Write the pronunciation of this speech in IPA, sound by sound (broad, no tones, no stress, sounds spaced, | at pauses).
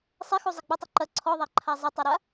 sˤ e x u zˤ ɪ ɡ͡b ə tˤ ɐ ǃ ɐ ǀʰ ɔ ðˤ æ ǃʰ a zˤ ɪ tˤ a ɾ a